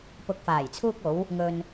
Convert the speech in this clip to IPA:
pʊ˨k̚faː˨˩jt͡sʰuː˧k̚o˨˧w | ŋɵ˧n

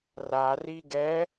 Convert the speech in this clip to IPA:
rari ɡɛ

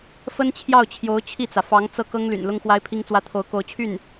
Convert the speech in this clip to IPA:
fə˥n t͡ɕʰjɑ˥˩ʊ̯t͡ɕʰjo˧˥ʊ̯ t͡ɕʰi˥˩t͡sä˩ fɑ˧˥ŋt͡sɤ˥˩ kɤ˥ŋly̰˨˩n lʊ˥ŋxwa˥ɪ̯pʰi˥ŋt͡swä˥ t̪ʰo˧˥ʊ̯ko˧˥ʊ̯t͡ɕʰy˥˩n

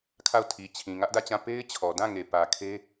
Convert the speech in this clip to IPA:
kʰa˦˨ʊ̯ tʰi˨t͡ɕʰĩ˨ ŋä˦ʔdä˦˨t͡ɕã˦˨ pe˦ɪ̯ t͡ɕʰɔ˨dã˦˨ŋe˨ pä˨kʰe˦

